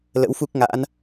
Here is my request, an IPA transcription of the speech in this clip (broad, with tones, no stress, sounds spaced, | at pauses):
l ə̰˧˥ w f u˦˥ k̚ ŋ a̰˧˥ n